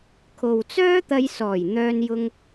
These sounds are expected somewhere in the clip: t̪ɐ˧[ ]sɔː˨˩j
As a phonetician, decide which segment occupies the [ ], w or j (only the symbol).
j